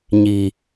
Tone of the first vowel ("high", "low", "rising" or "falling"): low